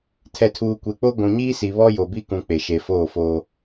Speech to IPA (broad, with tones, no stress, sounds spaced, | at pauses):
tʰ ɛ˨ tʰ uː˨ kʷ e˨ k͡p o˦ ɡʷ ũ˨ ɲ iː˦ s i˨ β ɔ˦ j o˨ b i˦ k ũ˨ k͡p e˨ ʃ e˨ f oː˦˨ f oː˦